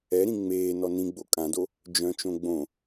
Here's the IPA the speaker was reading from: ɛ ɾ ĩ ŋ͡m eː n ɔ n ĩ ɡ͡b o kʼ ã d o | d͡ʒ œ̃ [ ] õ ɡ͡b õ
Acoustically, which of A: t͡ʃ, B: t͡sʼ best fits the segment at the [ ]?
A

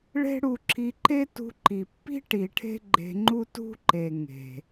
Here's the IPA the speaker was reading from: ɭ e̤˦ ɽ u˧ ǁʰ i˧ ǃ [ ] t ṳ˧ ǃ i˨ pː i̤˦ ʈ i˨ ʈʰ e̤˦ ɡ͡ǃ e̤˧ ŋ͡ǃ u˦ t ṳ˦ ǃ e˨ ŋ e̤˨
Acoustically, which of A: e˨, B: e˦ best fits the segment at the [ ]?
B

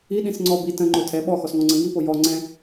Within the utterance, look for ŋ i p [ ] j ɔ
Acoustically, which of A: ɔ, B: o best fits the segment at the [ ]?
B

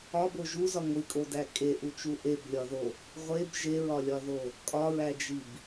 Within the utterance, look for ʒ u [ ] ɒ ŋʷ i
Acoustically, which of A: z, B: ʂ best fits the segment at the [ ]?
A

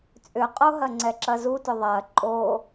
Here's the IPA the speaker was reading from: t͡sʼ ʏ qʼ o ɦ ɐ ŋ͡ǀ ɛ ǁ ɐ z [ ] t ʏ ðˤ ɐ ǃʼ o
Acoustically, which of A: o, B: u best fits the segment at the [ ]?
B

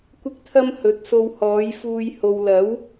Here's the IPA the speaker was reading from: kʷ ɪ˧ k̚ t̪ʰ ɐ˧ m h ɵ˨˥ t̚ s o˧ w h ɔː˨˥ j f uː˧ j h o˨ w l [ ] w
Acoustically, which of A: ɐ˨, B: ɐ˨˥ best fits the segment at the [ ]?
B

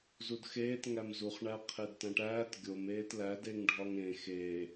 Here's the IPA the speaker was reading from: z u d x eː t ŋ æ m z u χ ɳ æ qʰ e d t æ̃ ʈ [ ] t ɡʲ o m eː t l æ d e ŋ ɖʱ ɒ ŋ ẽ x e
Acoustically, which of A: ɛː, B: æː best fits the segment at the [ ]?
B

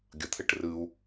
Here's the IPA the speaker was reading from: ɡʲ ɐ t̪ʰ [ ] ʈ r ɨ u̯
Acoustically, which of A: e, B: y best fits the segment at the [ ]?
A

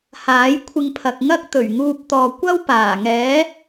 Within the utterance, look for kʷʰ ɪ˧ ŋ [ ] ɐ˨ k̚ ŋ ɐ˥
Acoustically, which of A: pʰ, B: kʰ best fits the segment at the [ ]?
A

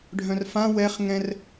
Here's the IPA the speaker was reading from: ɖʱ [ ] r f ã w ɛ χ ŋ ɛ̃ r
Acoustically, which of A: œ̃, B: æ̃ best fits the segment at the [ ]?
A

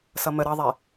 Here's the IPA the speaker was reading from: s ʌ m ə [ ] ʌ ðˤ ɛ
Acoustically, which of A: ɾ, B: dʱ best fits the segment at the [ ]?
A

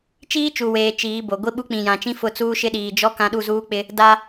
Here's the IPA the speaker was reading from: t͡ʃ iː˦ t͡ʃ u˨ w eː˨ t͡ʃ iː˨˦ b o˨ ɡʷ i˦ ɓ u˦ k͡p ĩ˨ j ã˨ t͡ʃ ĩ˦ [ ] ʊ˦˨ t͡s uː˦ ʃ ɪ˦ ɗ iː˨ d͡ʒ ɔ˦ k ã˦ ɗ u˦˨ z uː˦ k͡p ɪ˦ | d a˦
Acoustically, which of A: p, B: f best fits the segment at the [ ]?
B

